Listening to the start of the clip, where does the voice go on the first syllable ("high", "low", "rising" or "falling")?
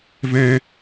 high